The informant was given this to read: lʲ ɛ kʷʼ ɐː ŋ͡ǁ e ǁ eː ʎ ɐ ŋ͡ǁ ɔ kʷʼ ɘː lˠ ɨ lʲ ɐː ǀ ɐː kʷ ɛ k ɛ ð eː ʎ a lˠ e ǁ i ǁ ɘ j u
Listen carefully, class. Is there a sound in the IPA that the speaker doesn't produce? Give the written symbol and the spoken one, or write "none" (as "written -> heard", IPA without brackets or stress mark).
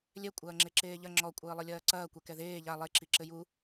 none